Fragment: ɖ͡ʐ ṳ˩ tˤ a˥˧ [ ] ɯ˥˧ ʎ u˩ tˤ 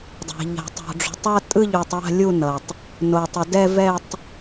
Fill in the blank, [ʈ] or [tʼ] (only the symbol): tʼ